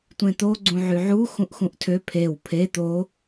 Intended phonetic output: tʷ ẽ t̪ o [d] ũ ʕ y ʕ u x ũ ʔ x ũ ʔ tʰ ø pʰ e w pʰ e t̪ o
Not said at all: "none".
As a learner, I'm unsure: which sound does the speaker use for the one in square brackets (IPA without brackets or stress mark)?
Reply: ɡ͡ǀ